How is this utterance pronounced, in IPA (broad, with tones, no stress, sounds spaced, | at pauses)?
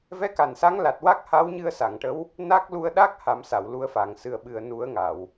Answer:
v ɛ˧˥ k a˨˩ n s a˧˥ ŋ l a˨˩ t̚ w a˦˥ k̚ h a˧˥ w ɲ ɨ˧ ə̯ s a˨˩˨ ŋ ʈ ə˧˥ w | n a˦˥ k̚ l u˧ ə̯ ɗ a˦˥ k̚ h a˨˩˦ m s a˨˩˨ w l u˧ ə̯ f a˨˩ ŋ s ɨ˨˩ ə̯ ɓ ɨ˨˩ ə̯ n u˨˩˦ ə̯ ŋ a˨˩˨ w